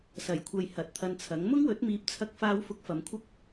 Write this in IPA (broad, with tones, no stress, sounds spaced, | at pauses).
s ɐ˨˩ j kʷʰ ɐ˨ j h ɐ˨˥ t̚ t̪ʰ ɐ˧ n t͡sʰ ɐ˨˥ ŋ m ʊ˥ ŋ w ɵ˨˥ t̚ m iː˨˥ p̚ t͡sʰ ɐ˧ k̚ f aː˧ w f ʊ˧ k̚ f ɐ˨˧ m kʷʰ ɐ˥ k̚